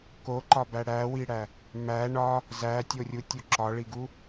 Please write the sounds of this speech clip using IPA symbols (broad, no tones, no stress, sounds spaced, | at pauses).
k o ǃ ɒ b æ ɽ æ w i ɽ æ | m æ ɳ ɒ | z æ tʲ o rʲ u tʲ u ǁ ɒ ɭ i ɡ u